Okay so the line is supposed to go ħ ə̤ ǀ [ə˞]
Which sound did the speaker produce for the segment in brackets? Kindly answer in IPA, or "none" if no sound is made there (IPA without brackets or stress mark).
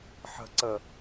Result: ə